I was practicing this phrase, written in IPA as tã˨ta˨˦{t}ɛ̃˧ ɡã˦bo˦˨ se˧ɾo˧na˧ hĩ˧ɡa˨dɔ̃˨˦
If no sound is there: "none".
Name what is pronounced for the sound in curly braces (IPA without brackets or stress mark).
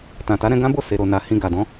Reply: ɾ